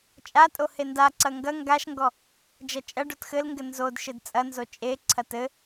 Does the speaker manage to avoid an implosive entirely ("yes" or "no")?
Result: yes